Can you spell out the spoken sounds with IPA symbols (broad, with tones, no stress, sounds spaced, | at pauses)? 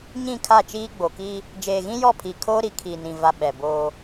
ɲ ĩ˦˨ kʰ a˦˨ t͡ʃ iː˦ ɡ͡b o˨ k iː˦ | d͡ʒ eː˨ ɣ ĩ˦ j ɔ˦˨ pʰ i˨ kʰ oː˦ ɾ i˨ kʰ iː˨ n ĩ˨ v a˨ ɓ ɛ˨ b oː˦